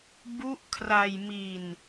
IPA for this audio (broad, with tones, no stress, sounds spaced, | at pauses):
b u˦˥ ʔ kʰ r a˧ j m i˧ n